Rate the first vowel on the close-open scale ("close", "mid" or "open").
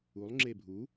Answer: close